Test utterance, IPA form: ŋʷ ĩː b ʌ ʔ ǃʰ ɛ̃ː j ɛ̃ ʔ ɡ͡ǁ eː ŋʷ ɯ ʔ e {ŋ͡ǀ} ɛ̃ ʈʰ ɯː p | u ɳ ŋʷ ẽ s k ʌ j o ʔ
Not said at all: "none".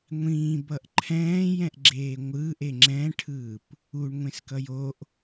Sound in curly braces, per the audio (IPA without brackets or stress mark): ŋ͡ǁ